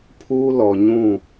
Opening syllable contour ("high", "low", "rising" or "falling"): high